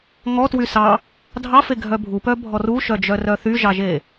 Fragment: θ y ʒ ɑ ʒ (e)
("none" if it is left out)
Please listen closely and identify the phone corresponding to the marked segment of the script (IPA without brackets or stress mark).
e